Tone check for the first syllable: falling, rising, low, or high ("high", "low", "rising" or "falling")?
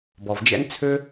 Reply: low